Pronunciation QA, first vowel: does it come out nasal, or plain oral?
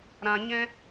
nasal